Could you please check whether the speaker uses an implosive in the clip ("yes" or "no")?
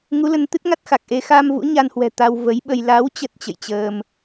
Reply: yes